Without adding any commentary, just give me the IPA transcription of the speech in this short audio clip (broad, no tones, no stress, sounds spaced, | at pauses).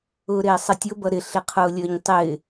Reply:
ʊː ɾ ɪː sˤ ə tʲ ʊ b ʌ ɾ ɪ ɬ ɪ qʰ ʊː lʲ əː ɲ tˤ ɪː